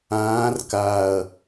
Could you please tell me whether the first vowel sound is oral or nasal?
nasal